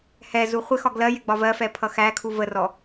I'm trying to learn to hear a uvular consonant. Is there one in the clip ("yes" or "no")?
yes